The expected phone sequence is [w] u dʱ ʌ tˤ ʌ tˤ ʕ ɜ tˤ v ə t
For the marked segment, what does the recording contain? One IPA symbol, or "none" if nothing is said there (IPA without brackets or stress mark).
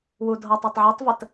w